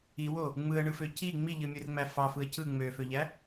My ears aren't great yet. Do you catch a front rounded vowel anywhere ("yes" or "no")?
yes